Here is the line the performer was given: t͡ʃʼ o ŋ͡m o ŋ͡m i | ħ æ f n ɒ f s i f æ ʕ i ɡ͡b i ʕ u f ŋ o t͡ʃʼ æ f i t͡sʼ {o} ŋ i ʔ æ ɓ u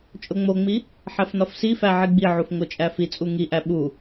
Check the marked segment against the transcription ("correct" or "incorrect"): incorrect